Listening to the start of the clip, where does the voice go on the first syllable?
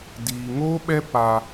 low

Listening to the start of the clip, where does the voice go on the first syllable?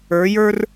rising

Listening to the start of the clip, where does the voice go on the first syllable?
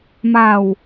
falling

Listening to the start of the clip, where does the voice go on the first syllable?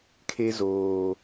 high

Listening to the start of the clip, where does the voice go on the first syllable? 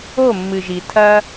falling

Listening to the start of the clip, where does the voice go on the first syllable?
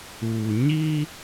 low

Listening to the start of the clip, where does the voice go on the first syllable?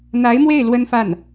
rising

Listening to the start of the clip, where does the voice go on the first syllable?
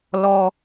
high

